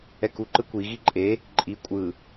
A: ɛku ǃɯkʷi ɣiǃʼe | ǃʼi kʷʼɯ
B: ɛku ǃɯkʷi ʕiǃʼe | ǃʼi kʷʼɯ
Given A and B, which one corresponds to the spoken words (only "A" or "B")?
A